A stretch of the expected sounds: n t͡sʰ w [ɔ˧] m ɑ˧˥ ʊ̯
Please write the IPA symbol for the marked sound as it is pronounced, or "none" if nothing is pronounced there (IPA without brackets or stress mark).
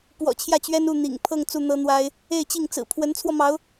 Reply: ɔ˧